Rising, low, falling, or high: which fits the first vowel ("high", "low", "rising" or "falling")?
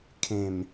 low